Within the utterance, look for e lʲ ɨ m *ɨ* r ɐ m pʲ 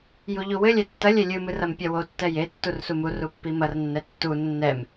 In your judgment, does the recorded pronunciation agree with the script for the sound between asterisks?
yes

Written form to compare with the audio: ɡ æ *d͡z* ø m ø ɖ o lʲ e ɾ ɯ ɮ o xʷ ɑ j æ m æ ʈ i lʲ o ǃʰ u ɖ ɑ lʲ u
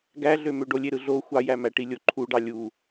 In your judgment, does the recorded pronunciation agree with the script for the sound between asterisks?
no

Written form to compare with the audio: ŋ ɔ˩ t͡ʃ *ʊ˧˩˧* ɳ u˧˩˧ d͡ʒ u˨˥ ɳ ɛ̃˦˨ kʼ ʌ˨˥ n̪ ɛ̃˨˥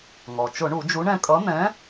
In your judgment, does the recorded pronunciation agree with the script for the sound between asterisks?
yes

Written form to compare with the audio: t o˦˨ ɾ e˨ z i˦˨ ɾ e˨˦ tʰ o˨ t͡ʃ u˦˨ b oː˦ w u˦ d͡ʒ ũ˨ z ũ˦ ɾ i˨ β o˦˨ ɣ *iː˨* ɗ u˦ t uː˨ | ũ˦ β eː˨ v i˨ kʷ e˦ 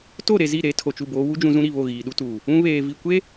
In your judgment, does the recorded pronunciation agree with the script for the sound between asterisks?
yes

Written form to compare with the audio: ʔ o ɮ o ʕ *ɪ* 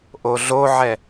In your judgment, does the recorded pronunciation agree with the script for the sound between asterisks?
no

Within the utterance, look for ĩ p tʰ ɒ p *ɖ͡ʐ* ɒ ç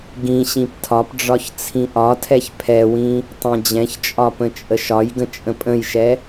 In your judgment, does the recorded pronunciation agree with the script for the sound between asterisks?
yes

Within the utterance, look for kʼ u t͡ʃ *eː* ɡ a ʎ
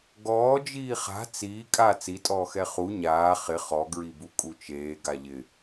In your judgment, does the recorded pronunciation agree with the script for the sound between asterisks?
yes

